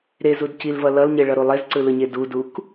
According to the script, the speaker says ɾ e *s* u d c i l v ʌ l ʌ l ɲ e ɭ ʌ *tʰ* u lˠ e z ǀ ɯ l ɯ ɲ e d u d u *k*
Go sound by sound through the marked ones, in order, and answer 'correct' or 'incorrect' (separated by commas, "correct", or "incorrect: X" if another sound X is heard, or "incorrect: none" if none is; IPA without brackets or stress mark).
incorrect: z, incorrect: ɾ, correct